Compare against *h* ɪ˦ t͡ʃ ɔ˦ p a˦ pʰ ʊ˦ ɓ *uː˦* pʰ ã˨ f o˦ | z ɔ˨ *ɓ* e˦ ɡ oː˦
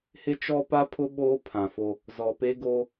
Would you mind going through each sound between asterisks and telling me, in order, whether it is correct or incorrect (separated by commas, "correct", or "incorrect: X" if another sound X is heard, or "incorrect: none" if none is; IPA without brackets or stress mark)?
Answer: correct, incorrect: oː˦, incorrect: p